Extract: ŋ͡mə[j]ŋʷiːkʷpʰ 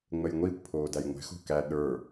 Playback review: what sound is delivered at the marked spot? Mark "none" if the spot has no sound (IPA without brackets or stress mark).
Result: j